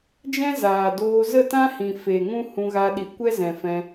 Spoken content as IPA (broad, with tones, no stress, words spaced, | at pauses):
d͡ʒɛ̃˦zaː˨doː˧ zə˦˨tã˦ hĩ˨ fe˨ ŋũ˦ hũ˧ɣa˧ɗi˨ kʷɛ˦zɛ̃˨ fɛ̃˧